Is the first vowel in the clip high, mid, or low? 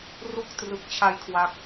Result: high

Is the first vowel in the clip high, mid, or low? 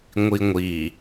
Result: high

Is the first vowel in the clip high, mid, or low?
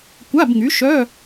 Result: low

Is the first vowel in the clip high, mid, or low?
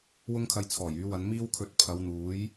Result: high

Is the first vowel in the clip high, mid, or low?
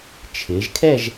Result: high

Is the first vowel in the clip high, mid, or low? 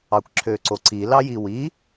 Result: low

